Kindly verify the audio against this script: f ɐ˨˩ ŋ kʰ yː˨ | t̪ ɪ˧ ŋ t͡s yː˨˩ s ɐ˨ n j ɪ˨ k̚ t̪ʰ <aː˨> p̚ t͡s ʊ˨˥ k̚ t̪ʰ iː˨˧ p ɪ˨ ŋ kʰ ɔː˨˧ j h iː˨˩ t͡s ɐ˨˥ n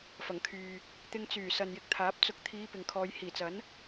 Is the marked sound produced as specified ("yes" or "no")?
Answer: no